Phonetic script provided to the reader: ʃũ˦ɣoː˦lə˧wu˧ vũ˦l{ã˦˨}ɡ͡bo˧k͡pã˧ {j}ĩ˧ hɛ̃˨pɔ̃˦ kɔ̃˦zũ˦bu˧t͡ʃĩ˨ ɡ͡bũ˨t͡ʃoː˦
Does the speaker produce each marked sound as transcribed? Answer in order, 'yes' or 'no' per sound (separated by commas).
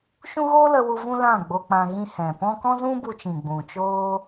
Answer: yes, no